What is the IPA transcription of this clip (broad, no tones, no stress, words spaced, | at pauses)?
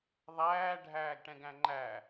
ðˤæː ɖʱæːɡʈɛ̃ɡæ̃ŋ͡ǃæ